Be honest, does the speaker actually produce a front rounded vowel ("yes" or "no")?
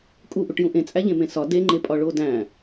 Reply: no